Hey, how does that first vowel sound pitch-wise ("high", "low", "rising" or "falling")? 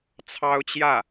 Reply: high